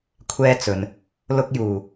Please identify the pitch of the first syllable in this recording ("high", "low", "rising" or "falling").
high